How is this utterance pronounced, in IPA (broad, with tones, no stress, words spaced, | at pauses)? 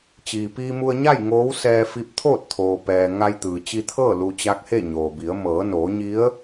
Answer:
t͡ɕiː˩piː˧mu˧ə̯ɲa˥˨j ŋoː˧˥wsɛː˧ fi˧p̚t̪ʰoː˥˨t̚t̪ʰoː˩ pɛː˩ ŋa˧jt̪ɯː˩ t͡ɕi˧t̪ʰɤː˥˨ lu˧t͡ɕa˧˥k̚he˥˨ ɲoː˩bi˩˧ə̯ mɤː˩˧noː˩˧ɲi˧˥ə̯